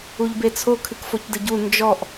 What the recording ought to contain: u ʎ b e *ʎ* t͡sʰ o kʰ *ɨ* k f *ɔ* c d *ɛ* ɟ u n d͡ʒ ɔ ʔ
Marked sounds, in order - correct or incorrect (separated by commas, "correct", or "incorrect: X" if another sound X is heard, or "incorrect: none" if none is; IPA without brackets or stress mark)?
incorrect: none, correct, incorrect: o, incorrect: ɘ